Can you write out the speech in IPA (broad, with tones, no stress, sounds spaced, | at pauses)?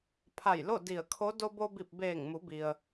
pʰ a˧˩ j l o˥˨ d i˧˩ ə̯ kʰ o˧˥ d o˧ b o˧ b i˧˩ p̚ b eː˧˩ ŋ m u˩˧ b i˩ ə̯